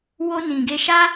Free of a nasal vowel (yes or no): no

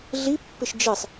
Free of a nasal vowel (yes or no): yes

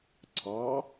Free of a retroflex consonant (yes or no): yes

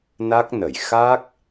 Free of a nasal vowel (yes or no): yes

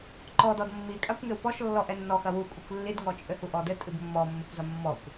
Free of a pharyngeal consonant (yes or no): yes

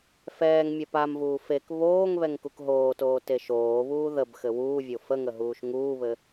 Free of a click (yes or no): yes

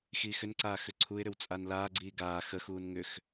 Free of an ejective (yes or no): no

